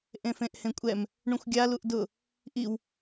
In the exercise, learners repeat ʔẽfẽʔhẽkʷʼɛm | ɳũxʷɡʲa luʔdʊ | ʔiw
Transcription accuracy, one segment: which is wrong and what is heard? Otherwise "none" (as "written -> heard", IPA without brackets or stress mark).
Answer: none